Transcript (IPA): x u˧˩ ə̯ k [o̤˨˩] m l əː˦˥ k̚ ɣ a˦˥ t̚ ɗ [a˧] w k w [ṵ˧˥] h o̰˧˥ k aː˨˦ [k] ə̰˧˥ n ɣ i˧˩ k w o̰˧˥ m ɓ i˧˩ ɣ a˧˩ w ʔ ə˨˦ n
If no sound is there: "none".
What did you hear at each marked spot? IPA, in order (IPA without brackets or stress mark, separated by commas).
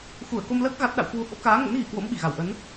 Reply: o˧, a̰˧˨, ṳ˨˩, ŋ